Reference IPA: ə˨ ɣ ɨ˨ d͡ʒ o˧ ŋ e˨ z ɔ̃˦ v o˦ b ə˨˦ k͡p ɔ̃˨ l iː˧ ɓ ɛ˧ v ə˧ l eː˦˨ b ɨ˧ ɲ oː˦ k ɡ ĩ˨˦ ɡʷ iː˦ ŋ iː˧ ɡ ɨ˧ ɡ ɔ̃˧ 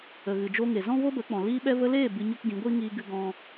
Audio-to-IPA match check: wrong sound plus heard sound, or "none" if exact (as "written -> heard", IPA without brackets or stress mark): oː˦ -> o˦